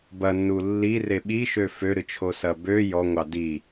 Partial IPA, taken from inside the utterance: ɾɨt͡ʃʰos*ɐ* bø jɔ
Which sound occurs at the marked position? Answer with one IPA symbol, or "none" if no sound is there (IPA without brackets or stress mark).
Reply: ɐ